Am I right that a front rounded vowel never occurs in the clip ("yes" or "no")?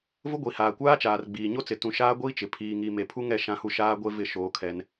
yes